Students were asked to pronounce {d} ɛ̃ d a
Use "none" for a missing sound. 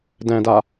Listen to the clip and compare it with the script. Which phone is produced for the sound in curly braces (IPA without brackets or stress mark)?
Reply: d